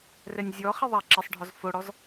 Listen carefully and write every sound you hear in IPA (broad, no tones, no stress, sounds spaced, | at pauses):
r ɛ nʲ zʲ ɔ χ i ðˤ a ǁ e sˤ ɖʱ ɔ z f o ɽ ɔ z